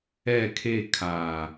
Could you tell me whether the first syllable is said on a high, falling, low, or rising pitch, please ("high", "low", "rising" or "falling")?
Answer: low